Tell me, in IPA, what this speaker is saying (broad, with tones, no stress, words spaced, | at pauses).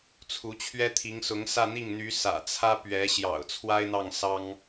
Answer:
t͡sʰu˧˥t͡ɕʰɥɛ˥t̪ʰi˧˥ŋsʊ˧˥ŋ sä˥˧n̪i˥˩ŋn̪y˧˥ sä̰˨˩t͡sʰä˥pɥɛ˧˥ ɕjɑ̰˨˩ʊ̯t͡sʰwa˥ɪ̯n̪ɑ˥˩ŋsɑ˥ŋ